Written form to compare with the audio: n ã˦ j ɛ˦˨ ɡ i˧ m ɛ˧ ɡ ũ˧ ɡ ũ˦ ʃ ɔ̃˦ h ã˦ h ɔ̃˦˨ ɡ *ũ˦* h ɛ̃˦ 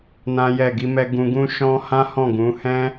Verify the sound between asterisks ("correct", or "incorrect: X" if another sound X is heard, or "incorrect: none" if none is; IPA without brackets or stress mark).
incorrect: ũ˨˦